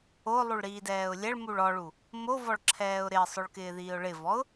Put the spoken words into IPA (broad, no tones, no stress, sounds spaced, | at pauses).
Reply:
o lˠ u ɭ ɾ iː d ɛː ʊ̯ lʲ ɛ ɭ m u ɭ ɔ ɭ u | m o v ɔ ɭ ǁʰ ɛː ʊ̯ ɾ ɪ ə̯ sˤ ʊ ɭ k ɪː ð iː ʊ̯ ɭ ɪ v ɔ ʊ̯